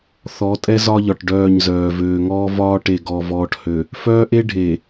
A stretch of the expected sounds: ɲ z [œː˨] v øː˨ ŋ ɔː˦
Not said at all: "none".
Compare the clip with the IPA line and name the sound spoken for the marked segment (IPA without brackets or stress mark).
œː˨